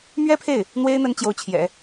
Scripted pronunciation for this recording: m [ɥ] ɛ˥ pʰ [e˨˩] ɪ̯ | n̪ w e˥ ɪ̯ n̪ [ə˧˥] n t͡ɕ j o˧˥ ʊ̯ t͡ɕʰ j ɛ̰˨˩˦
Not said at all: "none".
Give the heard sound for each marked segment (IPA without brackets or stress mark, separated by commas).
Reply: ɥ, e˥˩, ə˧˥